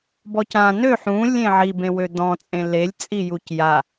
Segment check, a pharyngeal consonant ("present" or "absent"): present